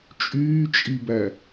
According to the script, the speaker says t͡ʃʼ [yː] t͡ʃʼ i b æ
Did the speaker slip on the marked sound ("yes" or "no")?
no